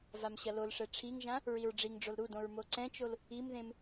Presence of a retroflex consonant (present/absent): present